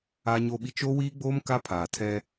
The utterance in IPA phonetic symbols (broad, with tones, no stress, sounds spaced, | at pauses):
aː˦ ɲ oː˦ ɓ i˦ t͡ʃ o˦ w iː˦ ɡ͡b oː˦ m k a˦ pʰ aː˨ tʰ ɛ˦